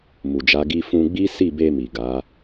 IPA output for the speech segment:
mu˨d͡ʒa˨˦ ɡi˧fũ˧ɡ͡bi˦ si˦˨be˧mi˨ɡa˨˦

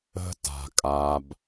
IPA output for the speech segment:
ə̤˧ta̤˨ kʼa˧b

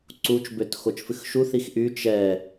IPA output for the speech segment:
ǀut͡ʃbøt xot͡ʃfɨxʃu θixʔy t͡ʃɛ

